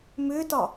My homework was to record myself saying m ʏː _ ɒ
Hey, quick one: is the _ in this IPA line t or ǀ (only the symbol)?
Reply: t